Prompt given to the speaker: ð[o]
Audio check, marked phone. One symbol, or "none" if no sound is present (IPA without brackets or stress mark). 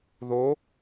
o